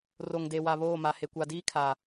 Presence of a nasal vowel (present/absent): absent